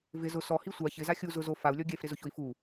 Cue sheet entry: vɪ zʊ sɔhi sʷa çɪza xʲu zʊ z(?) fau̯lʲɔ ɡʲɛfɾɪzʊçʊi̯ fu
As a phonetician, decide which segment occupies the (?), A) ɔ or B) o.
B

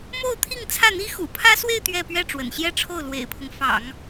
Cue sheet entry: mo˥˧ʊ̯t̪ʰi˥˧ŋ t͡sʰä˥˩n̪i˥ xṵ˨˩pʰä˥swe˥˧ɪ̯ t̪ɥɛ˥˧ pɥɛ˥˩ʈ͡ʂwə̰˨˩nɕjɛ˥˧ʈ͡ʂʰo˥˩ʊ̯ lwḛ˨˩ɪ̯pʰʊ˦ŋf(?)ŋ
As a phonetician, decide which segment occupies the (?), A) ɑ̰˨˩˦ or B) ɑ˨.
A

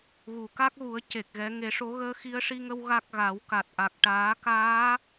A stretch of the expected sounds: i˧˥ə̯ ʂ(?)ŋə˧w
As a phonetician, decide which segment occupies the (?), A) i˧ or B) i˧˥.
A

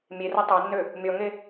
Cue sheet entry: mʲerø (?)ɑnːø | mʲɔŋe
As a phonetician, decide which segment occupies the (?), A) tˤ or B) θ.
A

